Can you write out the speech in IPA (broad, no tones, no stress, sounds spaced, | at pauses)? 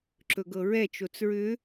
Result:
ǁ ɵ ɡ ɤ ɹ ɛ t͡ʃ o t͡s ɹ ʏ